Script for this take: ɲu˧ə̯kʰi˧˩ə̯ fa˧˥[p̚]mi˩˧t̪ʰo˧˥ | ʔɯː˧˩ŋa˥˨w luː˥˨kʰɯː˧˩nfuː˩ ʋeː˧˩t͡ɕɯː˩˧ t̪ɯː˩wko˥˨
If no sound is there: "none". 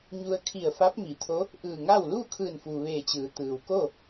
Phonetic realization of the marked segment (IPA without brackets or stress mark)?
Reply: p̚